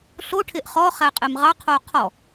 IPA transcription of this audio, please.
ɬ o ʈʰ e ʔ χ ɔ χ æ qʼ e m ʁ ɑ qʰ o qʰ ɔ

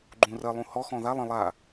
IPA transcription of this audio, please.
ɡ͡ǃ ũ r ɜ lˠ ũ h ɔ x ɔ̃ ð a lˠ ə̃ lˠ a

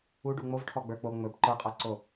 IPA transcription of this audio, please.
u ɖ u ŋ͡m o v ʈʰ ɔ ɡ͡b ə˞ k͡p o ŋ͡m ɵ b ǃ ə˞ qʼ ɜ ǀ o

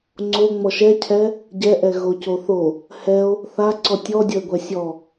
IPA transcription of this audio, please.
ŋ͡ǀ o ŋ͡m ɔ ʃ ɛ cʰ ɛ | ɟ ɛ ʔ ɛ ɣ o c o θ o | h ɛ o̯ | θ a ǀ ɔ tʲ ɔ dʲ ʌ e̯ ɡʷ ɛ sʲ ɔ

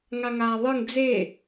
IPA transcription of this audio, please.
ŋ a ŋ aː ðˤ ɯ ŋ d͡z e

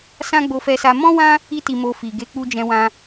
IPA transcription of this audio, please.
s ã˦ ɡ͡b o˧ f ɛ˧ s a˧ m ɔ̃˦ w ã˦ | i˦ t i˧ m o˧ f i˨ ɡ e˨˦ k͡p u˧ d͡ʒ ɛ̃˧ w ã˧

